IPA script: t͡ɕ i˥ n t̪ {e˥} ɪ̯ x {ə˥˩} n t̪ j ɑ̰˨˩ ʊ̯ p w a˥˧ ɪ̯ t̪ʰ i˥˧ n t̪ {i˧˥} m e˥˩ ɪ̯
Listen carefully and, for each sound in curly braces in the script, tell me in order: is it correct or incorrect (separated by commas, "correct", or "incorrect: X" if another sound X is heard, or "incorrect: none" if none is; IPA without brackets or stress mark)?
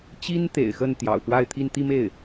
incorrect: ḛ˨˩, correct, incorrect: i˥˧